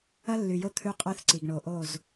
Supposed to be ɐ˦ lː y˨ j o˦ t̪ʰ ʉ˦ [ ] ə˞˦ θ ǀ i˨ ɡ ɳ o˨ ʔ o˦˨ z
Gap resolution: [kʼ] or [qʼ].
qʼ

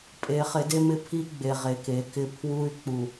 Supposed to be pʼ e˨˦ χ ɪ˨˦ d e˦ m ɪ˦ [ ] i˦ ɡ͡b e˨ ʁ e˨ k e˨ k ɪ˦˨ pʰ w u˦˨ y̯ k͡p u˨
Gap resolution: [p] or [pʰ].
pʰ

